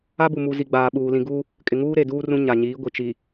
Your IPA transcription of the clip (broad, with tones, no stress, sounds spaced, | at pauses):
a˦ b u˨ m u˨ z i˨ ɡ͡b aː˨ ɓ uː˨ l ĩ˨ ɡ u˦ | kʼ ɪ˨ ŋ uː˦ ɾ e˨ d uː˦ r ũ˦ ɲ a˨ ɲ iː˨˦ ɡʷ i˨ t͡ʃ i˨